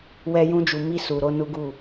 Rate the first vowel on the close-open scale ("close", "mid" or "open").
mid